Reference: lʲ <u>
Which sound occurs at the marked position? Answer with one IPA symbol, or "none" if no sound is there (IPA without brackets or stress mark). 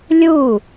u